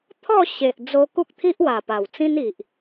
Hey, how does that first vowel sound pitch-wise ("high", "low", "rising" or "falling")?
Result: falling